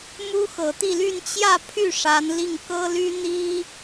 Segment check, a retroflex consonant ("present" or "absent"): present